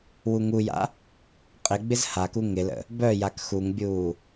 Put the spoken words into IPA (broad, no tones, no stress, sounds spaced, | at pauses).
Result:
w u ŋ u j a̰ | qʼ ɪ ɡ͡b ɪ z h a k u ŋ ɪ l ə̰ | b œ j a k x u ŋ bʲ uː